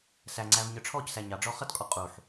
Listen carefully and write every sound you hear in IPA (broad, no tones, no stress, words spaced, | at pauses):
sæŋ͡ǀæv ɲə˞ʈ͡ʂʰɔcsæ ɲɑɖ͡ʐɔ χʌtkʼɔ qʼuħ